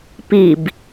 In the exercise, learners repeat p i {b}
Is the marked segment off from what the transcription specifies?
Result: no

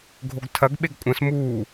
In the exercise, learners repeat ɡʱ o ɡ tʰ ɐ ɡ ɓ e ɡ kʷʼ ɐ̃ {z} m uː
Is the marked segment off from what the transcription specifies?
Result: yes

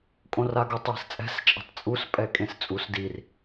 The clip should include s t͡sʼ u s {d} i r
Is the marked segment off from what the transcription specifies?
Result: no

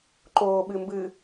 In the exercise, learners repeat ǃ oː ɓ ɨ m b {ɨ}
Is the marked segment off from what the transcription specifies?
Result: no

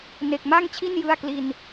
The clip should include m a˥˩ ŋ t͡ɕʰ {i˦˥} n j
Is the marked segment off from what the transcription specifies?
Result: yes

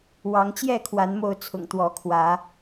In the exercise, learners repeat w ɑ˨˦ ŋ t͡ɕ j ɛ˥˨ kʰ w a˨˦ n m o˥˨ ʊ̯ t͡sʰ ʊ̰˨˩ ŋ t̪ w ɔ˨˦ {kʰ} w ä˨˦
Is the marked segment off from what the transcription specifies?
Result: no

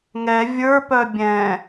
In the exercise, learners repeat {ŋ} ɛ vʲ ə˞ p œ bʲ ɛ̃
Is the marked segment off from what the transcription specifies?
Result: no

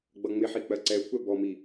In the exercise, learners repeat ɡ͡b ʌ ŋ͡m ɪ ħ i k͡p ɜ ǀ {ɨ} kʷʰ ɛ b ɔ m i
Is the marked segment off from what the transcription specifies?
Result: yes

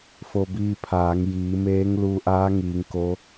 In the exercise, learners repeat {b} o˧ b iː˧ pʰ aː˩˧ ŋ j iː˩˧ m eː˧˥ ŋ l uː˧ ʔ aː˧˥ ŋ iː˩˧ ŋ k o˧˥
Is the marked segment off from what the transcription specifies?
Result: yes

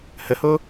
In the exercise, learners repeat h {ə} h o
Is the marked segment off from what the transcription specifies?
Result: no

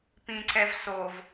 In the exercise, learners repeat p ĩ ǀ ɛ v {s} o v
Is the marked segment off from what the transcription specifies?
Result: no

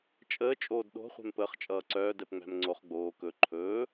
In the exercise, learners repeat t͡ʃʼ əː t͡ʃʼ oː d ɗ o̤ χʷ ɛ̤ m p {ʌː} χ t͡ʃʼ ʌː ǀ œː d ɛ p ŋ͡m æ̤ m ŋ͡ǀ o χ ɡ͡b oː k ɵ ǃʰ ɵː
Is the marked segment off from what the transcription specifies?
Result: yes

